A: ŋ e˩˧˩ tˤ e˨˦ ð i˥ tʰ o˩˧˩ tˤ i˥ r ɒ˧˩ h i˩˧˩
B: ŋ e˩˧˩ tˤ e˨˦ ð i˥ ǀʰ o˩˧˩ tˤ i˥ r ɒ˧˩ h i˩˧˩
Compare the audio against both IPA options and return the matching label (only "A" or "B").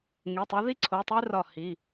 B